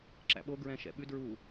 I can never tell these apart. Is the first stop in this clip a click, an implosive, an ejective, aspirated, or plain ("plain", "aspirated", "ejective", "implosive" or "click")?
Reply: click